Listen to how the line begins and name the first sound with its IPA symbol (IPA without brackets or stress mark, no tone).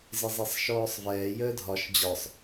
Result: z